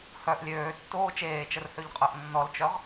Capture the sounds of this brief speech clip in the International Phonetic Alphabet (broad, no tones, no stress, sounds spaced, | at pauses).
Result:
h œ ʔ lʲ øː tː oː t͡ʃ eː t͡ʃ ə r h ø ʎ qʼ œ ʔ nː ɔ l t͡ʃ œ ʁ